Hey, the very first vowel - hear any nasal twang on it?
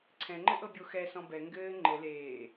yes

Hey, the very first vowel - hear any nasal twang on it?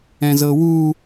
yes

